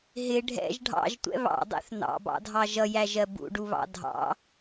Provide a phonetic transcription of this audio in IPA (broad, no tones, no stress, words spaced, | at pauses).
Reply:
ɦɪ ɖʱɛ̰ʒ ɖʱɑ̰ʒtʷɛ̰ βɑ̰dˤɛ̰θ nɑ̰bɑ̰dʱɑ ʒʌjæʒɜ bṵɖuβɑ̰ dʱɑ̰